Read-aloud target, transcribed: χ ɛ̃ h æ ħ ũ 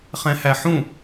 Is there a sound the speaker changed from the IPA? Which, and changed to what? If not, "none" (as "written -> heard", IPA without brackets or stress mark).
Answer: none